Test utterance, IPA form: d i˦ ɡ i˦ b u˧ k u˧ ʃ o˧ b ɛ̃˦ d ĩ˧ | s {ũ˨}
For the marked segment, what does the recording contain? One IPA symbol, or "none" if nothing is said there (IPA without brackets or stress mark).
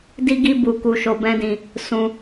ũ˧